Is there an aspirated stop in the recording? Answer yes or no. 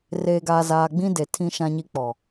yes